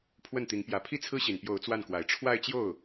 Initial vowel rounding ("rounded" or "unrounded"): unrounded